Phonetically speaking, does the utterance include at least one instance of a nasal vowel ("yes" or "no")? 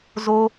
no